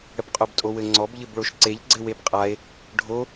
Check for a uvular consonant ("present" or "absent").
present